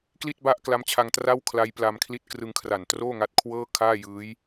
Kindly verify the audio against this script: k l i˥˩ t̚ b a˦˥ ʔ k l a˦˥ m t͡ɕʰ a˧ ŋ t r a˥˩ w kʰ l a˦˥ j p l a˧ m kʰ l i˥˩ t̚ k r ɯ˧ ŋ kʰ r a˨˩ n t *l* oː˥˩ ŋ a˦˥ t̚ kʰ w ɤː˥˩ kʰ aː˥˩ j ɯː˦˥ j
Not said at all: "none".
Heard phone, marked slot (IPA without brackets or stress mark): r